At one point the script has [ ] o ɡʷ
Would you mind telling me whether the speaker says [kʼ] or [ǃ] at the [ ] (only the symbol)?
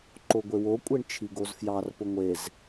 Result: ǃ